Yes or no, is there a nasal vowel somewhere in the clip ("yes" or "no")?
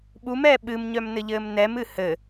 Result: no